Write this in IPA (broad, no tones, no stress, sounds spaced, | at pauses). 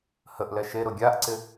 h ə ʔ l ɛ ʃ e ɾ ʊ ɡʲ a ʔ ǀ ɪ